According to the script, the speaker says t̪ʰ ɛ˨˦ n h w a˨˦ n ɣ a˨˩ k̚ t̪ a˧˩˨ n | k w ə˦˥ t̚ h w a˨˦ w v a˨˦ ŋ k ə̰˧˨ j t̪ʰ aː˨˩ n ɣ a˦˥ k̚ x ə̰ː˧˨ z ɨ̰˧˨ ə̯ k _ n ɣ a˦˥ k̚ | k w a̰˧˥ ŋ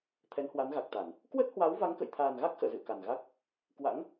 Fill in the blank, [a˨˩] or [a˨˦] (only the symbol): a˨˩